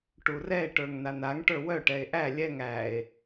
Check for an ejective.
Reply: absent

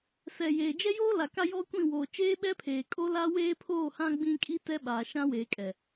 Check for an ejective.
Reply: present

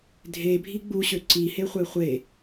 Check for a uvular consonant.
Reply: present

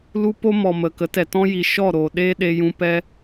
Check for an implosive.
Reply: present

